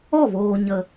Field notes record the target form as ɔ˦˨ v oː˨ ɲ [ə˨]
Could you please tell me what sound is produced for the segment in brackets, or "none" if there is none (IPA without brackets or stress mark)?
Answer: ə˨